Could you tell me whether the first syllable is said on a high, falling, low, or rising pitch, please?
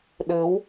rising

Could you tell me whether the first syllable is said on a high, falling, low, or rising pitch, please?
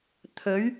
rising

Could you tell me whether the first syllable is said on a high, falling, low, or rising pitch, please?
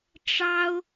high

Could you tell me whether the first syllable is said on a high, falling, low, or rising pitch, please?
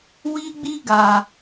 high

